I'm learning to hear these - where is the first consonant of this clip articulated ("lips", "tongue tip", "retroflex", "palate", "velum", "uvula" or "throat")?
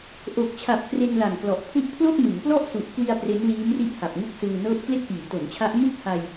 throat